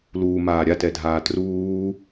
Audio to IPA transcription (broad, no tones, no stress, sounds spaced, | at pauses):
l uː m aː ɾʲ a t ɛ dʱ aː t r uː